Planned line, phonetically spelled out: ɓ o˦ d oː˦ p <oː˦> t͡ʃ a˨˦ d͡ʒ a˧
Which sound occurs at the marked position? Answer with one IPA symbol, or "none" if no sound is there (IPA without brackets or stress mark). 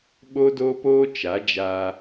oː˦